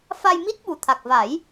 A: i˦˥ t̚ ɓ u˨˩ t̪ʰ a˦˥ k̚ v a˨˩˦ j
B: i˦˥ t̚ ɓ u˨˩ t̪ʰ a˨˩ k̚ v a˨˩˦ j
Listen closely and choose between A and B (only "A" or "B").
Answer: B